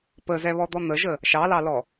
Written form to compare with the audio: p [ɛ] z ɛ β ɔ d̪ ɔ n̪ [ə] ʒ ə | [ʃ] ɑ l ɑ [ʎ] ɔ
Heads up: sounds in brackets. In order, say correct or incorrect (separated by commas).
incorrect, correct, correct, incorrect